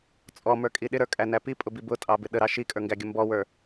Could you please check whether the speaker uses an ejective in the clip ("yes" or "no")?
yes